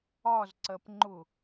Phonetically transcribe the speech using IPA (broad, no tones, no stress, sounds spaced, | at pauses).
ɒ z ǀ ɜ p ŋ͡ǃ ʊ